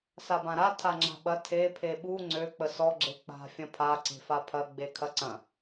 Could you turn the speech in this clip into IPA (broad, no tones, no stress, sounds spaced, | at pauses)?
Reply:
s a b ã ɾ a tʰ a ŋ͡ǁ a̤ ɓ ɐ tʰ e pʰ e ɓ u ŋ͡ǀ ø k͡p ə s ɔ ɡ͡ǁ e k͡p a̤ fʲ ɐ̃ pʰ a ǀ e̤ f a pʰ ɐ ɡ͡b e kʰ ɐ ǀ ɐ̃